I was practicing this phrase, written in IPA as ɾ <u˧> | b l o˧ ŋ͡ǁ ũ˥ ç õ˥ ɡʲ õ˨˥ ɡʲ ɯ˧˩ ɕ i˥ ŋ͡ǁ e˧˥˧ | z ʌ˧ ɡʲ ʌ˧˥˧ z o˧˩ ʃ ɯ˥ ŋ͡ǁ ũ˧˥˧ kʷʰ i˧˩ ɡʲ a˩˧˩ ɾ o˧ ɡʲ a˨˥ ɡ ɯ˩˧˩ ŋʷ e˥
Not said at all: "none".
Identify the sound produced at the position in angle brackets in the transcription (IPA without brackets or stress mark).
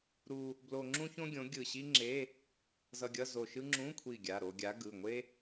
u˧